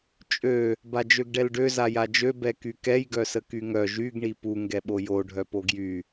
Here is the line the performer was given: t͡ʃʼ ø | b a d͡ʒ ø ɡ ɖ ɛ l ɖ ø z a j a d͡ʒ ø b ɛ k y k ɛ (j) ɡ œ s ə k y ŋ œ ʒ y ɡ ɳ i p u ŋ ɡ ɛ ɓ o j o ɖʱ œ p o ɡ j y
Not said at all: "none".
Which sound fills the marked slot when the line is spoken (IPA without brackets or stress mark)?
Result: j